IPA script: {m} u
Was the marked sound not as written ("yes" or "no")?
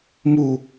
no